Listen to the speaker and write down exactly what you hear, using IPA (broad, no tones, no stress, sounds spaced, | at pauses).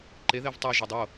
ǃ e ð e v tˤ i ʒ ɒ dˤ o